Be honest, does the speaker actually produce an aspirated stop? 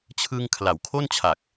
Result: yes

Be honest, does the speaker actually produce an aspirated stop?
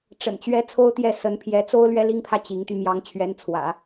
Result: yes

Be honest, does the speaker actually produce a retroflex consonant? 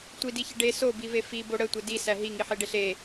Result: yes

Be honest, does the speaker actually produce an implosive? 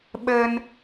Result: yes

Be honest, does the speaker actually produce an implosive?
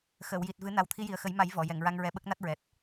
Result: yes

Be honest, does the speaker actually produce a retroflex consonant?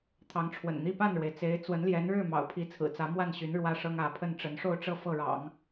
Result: yes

